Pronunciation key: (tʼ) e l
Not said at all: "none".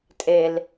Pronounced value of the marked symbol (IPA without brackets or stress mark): tʼ